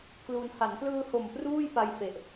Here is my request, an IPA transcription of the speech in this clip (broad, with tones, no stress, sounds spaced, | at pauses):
k l u˧ n h a˩˦ n k l ɯː˧ h o˨˩ m p r uː˥˩ j p a˧ j f e˨˩ ʔ